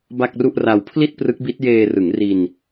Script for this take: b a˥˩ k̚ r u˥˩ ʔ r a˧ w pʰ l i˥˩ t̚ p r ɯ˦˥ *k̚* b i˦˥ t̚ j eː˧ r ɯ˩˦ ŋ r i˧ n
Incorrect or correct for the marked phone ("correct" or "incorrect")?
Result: correct